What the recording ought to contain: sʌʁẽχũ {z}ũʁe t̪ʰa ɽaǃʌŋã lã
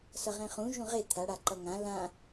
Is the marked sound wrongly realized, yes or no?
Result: yes